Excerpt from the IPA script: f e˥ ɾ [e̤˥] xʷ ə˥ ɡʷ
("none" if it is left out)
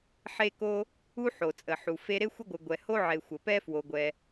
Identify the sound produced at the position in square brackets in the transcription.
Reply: e˥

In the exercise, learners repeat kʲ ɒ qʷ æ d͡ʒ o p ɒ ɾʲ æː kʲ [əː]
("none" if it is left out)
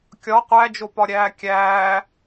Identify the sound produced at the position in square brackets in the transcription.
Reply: æː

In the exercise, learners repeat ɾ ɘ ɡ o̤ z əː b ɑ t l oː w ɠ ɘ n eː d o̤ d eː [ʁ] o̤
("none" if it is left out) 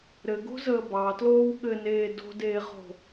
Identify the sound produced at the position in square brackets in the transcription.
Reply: ʁ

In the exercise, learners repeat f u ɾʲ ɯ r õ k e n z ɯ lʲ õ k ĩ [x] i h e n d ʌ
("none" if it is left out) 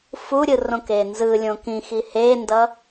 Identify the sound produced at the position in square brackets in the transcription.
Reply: x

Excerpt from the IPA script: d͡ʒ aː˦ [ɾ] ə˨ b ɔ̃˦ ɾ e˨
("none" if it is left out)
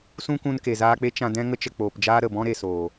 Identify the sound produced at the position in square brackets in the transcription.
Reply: ɾ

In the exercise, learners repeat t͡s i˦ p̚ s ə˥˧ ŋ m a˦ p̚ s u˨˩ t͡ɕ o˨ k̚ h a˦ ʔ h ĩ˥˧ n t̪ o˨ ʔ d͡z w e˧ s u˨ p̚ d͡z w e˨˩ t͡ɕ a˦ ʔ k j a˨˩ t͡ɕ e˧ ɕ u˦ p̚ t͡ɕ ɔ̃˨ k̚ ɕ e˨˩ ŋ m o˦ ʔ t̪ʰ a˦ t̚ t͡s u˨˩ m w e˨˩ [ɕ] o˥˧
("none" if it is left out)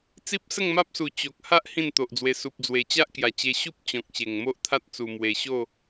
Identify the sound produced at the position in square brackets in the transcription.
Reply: ɕ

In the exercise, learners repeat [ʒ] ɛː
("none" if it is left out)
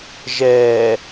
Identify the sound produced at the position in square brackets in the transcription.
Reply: ʒ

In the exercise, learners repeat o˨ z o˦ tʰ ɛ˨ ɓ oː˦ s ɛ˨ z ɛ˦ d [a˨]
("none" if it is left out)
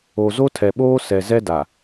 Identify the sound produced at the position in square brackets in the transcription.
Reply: a˨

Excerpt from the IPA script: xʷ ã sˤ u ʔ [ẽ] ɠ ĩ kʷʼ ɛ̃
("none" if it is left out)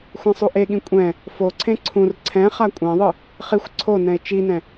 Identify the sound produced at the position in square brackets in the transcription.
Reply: e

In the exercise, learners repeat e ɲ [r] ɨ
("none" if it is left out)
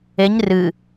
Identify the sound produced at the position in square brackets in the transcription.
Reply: r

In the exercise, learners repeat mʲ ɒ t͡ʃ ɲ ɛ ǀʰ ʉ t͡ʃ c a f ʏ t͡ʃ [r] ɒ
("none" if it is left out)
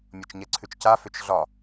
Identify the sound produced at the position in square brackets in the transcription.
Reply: ɮ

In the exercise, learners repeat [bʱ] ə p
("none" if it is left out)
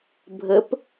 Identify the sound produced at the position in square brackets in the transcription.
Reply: bʱ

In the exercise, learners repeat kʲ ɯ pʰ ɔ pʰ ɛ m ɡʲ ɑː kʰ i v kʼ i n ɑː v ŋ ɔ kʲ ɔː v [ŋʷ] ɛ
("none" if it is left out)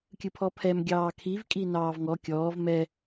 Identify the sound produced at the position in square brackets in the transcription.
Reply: m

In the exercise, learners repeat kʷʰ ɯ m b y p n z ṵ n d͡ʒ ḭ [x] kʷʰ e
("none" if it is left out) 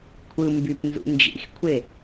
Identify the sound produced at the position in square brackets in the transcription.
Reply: x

